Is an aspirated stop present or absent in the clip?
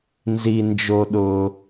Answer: absent